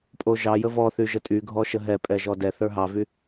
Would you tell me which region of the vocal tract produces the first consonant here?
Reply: lips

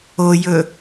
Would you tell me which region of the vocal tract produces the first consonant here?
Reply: palate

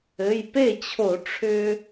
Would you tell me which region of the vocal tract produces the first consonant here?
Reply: palate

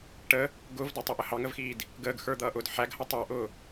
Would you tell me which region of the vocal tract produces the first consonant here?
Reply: retroflex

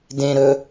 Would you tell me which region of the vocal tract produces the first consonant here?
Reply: tongue tip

